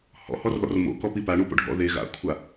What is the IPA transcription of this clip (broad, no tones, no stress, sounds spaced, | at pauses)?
h ɔ̰ h ɔ r ð ɔ̰ r m o̰ k ɔ p i p a ɳ u p o̰ ɖʱ ɔ̰ ð e ɣ a̰ kʷʰ a